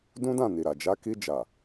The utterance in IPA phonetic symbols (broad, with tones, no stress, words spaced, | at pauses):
dũ˦dã˦˨ni˨ɾa˨ d͡ʒa˨˦ki˧d͡ʒa˨